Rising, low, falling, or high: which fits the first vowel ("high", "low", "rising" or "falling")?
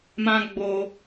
high